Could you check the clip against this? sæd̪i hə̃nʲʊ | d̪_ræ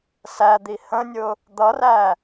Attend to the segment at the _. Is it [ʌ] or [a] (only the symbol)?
ʌ